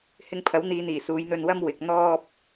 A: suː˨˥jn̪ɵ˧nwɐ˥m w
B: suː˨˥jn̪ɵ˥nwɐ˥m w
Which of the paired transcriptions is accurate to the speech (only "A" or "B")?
A